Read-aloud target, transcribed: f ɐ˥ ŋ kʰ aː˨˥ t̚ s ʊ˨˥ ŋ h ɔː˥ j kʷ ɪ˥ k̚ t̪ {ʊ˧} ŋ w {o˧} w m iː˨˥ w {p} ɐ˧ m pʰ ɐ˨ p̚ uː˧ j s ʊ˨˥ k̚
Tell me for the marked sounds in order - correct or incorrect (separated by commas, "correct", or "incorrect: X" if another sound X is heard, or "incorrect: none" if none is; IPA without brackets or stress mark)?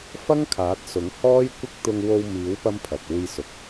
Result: correct, correct, correct